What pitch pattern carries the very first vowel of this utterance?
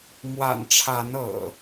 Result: low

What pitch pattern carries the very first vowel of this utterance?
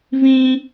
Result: high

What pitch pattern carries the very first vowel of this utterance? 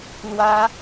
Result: high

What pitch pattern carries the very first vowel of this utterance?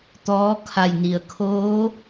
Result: rising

